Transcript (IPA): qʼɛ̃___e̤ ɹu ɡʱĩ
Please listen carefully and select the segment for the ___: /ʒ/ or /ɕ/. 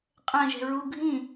ʒ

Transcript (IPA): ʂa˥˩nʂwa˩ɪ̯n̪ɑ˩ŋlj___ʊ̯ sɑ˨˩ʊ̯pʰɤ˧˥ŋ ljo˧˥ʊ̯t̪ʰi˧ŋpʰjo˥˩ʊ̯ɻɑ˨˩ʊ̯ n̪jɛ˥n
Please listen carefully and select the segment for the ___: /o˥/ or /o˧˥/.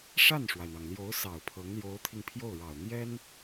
o˧˥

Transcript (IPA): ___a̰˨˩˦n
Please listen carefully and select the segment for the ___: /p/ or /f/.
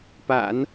p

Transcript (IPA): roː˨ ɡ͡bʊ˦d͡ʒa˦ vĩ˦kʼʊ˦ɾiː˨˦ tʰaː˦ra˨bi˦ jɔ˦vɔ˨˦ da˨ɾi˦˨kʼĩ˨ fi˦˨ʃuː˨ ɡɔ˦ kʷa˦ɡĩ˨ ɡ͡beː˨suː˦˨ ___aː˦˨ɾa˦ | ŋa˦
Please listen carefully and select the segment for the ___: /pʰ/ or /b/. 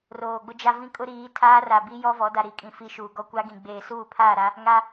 pʰ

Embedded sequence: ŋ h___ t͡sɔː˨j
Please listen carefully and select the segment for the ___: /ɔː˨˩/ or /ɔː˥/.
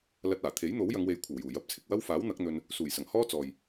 ɔː˥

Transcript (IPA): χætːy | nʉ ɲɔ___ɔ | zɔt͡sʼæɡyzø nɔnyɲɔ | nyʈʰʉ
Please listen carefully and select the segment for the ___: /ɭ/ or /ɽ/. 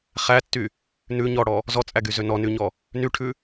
ɽ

